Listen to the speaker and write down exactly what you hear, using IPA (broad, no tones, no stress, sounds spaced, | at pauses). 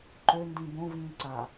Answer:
ǃ ø n d ĩ b õ v ĩː ǀ a